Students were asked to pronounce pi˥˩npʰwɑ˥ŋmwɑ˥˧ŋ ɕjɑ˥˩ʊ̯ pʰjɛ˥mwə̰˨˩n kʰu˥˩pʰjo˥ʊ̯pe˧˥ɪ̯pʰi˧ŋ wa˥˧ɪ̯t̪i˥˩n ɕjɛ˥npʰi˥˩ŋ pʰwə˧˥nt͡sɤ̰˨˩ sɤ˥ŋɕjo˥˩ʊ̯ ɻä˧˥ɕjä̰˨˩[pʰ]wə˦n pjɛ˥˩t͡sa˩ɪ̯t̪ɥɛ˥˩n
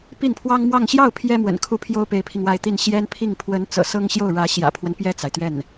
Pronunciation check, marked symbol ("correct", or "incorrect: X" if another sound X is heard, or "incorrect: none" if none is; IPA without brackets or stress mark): correct